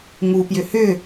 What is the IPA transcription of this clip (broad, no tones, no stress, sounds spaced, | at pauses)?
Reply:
ŋ u p j ʏ h ʏ